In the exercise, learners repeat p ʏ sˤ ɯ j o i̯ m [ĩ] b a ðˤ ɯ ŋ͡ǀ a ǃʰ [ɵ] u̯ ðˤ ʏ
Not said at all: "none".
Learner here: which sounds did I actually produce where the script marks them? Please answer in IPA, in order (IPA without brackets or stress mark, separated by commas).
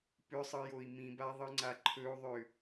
ĩ, ɵ